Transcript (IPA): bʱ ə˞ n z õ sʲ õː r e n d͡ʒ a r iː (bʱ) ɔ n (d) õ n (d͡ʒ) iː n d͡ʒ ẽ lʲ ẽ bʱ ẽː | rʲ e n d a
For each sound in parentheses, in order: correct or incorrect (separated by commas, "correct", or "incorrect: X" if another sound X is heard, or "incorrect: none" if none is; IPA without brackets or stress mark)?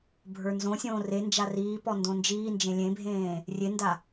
incorrect: p, correct, correct